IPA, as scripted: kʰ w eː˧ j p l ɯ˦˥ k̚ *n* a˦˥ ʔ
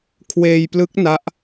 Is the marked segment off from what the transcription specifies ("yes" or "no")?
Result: no